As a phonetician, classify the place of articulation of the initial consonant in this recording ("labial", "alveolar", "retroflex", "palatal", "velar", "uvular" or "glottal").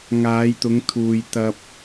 velar